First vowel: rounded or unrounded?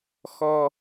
rounded